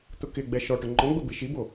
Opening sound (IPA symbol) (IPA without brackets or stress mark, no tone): t̪